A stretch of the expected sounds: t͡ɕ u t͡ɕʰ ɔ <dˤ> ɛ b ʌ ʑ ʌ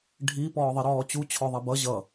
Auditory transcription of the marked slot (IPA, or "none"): ðˤ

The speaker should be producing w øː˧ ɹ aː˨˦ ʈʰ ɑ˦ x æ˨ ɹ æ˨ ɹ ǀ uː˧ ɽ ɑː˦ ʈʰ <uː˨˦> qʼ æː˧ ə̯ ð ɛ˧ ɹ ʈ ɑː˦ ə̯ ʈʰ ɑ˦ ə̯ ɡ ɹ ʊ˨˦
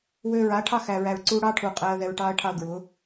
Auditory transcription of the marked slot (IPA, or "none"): uː˨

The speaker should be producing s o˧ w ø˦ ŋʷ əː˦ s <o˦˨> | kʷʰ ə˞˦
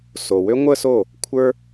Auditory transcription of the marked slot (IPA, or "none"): o˦˨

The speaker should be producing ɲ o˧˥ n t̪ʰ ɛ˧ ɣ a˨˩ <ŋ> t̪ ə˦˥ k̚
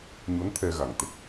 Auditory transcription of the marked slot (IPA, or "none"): ŋ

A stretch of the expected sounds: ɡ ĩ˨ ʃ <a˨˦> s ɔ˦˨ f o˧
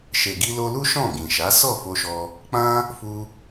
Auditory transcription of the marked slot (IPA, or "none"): a˨˦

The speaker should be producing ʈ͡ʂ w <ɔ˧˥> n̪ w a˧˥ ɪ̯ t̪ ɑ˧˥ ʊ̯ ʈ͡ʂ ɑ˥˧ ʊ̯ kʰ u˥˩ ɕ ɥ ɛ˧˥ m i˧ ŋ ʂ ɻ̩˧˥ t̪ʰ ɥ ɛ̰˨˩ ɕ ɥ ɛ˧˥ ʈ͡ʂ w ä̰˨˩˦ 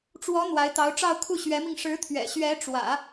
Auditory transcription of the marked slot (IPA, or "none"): ɔ˧˥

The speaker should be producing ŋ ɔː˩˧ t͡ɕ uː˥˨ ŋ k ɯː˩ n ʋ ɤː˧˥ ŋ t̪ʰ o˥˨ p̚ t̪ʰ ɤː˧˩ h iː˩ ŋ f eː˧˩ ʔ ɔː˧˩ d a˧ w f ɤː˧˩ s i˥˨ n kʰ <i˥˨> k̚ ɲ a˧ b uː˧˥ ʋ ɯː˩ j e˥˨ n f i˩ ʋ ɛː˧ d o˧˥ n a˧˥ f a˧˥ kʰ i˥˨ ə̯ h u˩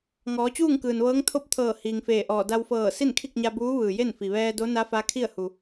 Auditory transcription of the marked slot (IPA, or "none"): i˥˨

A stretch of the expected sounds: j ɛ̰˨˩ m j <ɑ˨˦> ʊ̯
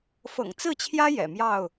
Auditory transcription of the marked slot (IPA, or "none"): ɑ˥˨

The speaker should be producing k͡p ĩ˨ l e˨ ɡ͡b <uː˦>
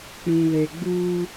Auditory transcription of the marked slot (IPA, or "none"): uː˦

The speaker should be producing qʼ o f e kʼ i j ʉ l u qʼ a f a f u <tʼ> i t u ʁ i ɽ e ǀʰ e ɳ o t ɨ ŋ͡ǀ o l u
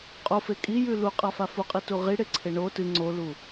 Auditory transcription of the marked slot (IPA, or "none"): qʼ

